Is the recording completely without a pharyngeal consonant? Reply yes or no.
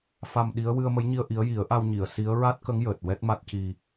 yes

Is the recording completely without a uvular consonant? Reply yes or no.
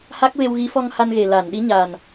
yes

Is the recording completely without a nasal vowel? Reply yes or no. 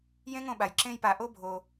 no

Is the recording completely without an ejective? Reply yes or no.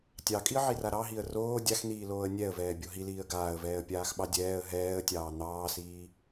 no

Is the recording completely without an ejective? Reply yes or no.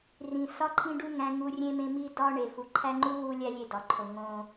yes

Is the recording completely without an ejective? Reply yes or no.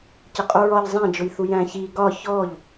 no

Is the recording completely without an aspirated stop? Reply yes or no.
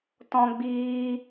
yes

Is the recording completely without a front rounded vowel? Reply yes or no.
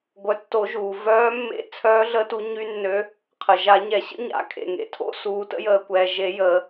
no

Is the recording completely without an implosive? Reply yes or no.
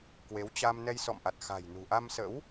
yes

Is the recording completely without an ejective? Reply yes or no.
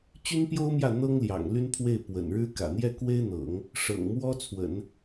yes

